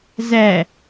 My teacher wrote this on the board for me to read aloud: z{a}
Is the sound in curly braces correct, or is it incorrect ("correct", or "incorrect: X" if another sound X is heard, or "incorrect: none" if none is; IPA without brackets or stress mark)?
incorrect: æ